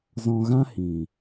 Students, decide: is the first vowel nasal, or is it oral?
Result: nasal